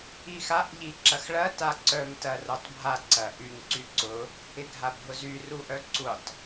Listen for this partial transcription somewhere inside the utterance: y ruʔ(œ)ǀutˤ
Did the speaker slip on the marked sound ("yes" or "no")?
no